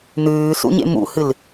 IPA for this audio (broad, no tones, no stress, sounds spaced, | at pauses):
n̪ ʉː s ṵ ɲ ḛ m ṵ h ɨ l